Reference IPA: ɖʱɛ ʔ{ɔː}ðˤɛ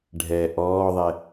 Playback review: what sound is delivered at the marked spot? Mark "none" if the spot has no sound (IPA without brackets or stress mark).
ɔː